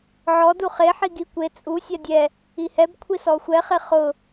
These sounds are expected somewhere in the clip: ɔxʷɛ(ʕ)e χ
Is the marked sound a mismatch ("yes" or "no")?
yes